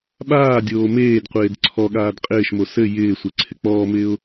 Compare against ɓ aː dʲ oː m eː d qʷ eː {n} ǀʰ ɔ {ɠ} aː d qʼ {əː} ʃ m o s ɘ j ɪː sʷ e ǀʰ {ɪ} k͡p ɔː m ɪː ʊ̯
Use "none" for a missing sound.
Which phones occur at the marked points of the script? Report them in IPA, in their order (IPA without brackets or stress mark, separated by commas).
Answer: d, ɠ, ɪː, ɪ